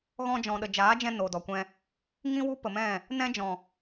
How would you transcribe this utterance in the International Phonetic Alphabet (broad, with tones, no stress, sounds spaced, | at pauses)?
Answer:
ɣ ɔ̃˧ d͡ʒ ɔ̃˨ ɗ ə˨ d͡ʒ aː˨˦ d͡ʒ ɛ̃˧ n o˨ d ɔ˨ kʷ ɛ̃˧ | ŋ ĩ˦ w u˦ p ə˨ m ɛ̃˦˨ | n ɛ̃˦ d͡ʒ ɔ̃˨